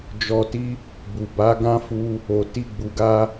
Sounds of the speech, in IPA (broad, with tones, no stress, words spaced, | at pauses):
d͡ʒɔ˧ti˦ | bu˨ ba˨˦ɡã˦fu˧ | o˨ ti˧ɡ͡bu˨ɡa˧